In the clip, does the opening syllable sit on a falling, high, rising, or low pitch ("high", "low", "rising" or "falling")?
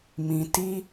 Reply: low